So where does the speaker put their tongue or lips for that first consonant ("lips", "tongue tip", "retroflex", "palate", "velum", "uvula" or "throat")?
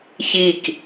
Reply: palate